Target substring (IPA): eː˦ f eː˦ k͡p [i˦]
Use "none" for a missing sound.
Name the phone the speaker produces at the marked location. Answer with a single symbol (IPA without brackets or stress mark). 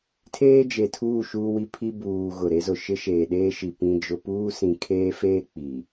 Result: i˨